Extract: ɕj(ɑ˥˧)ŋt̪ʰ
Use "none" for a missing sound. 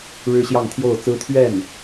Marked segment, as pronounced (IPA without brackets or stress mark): ɑ˥˧